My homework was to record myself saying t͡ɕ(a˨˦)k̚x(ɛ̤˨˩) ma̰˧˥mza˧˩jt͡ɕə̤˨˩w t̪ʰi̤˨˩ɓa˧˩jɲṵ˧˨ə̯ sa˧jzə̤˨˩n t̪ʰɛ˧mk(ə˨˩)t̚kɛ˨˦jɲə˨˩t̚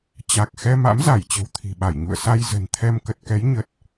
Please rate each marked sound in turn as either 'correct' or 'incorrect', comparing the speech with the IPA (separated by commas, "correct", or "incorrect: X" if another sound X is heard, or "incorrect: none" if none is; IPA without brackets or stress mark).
incorrect: a˨˩, incorrect: ɛ˧, correct